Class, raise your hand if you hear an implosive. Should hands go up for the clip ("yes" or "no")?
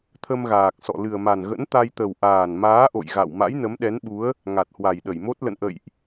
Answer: yes